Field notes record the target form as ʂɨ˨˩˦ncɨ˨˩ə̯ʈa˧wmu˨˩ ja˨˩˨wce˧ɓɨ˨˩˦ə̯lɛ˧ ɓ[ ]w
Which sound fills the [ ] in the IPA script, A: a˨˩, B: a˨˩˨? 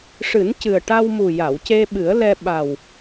A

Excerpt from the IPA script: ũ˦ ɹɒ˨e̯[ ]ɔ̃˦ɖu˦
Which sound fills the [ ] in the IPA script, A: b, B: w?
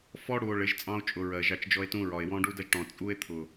B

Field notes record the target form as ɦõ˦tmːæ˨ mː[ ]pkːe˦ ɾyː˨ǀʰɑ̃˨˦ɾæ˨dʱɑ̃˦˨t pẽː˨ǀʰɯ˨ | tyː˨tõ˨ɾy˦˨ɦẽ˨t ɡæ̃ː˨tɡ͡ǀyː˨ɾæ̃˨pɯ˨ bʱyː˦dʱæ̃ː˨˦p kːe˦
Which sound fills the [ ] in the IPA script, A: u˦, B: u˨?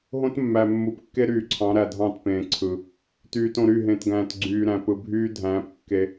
B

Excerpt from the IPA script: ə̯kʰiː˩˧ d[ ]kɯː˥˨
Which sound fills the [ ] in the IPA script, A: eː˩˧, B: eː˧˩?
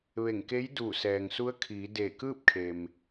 B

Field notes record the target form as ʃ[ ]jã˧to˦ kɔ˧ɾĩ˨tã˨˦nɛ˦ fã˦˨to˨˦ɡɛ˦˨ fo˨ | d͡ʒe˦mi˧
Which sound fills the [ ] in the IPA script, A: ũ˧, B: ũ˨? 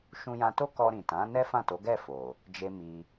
A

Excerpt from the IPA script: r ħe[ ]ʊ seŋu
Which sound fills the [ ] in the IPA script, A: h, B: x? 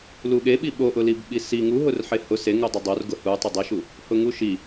A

